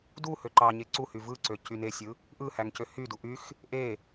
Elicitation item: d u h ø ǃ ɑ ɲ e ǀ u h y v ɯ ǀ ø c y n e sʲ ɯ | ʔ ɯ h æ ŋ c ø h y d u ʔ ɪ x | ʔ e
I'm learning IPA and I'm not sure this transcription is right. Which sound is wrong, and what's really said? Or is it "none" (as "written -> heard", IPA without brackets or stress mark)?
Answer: ɪ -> y